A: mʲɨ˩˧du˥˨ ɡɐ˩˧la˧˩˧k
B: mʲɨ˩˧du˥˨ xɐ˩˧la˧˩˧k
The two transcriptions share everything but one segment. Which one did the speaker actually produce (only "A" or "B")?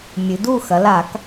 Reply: B